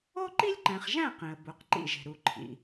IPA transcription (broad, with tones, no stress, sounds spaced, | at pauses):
o˦ ǃ i˦ lʲ ǃ æ̃˨ χ ʒ æ̃˦˨ q ĩ˨ ə̯ b u˨ q ǃ ḭ˦˨ ʒ e̤˨ ɾ u˨˦ ǃʰ ḭ˨